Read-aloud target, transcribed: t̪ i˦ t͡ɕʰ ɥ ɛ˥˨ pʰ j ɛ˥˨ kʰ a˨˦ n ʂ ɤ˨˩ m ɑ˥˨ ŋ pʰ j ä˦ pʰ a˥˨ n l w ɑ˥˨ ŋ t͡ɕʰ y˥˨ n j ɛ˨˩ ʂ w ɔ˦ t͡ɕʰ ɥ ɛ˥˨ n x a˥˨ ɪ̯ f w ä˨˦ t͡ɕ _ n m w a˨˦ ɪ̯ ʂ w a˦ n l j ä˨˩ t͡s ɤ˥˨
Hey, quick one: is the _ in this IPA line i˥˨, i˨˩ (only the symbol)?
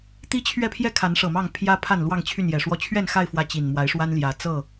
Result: i˨˩